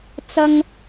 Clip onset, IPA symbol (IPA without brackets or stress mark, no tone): t͡s